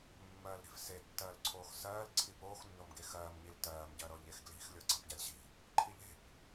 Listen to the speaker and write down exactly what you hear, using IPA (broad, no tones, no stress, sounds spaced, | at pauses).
mː ɜː l ɾ e̤ f s e tː ɜː l ǀʰ oː x s ɜː l ǀʰ i p oː x nː o m ɡ e x ɜː m ɲ i l t ɜː m ɟ ɜ ɾ ɤ ʎ e x ɡ l i̤ x lʲ ɤ ǀ a̤ p ɟ a lʲ ɕ i̤ | ǃʰ i ʎ e̤ p